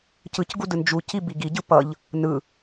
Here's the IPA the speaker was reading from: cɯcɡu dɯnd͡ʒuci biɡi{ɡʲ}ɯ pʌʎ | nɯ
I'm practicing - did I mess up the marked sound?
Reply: yes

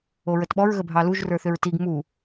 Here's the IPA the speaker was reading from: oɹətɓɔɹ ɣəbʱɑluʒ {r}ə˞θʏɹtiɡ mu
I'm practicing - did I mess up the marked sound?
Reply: no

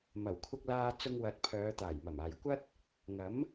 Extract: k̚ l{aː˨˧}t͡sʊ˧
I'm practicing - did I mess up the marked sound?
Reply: yes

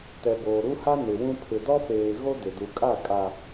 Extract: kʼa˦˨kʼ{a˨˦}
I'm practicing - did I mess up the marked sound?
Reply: yes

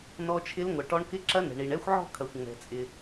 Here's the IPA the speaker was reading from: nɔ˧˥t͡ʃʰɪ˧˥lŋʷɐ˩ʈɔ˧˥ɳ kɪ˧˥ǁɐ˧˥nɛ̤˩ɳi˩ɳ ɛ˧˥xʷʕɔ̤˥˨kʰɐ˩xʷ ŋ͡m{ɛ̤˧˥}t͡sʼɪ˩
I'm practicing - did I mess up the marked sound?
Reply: yes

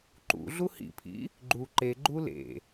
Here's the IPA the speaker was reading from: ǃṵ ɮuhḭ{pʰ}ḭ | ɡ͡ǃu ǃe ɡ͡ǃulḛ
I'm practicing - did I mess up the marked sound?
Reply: no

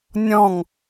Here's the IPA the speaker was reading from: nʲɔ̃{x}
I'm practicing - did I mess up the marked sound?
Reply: yes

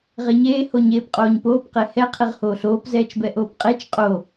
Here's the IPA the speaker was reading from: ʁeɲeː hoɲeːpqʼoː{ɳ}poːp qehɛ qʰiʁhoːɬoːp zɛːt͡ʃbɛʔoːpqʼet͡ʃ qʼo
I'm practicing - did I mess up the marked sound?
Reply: yes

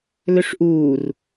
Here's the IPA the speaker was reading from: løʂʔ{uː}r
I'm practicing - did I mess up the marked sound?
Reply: no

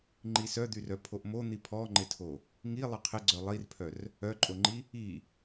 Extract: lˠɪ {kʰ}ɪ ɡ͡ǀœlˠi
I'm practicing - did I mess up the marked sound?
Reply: yes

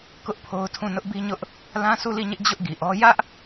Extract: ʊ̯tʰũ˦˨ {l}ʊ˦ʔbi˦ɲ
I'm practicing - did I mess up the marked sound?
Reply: yes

